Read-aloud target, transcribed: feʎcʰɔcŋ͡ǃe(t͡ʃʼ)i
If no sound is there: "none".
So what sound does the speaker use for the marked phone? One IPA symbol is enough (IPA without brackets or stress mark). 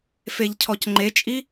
t͡ʃʼ